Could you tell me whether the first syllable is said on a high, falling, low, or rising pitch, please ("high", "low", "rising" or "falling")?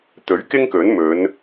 rising